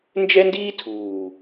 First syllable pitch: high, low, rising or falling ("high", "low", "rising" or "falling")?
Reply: high